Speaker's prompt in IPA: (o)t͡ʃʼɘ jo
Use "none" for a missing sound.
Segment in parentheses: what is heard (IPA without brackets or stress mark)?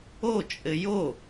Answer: o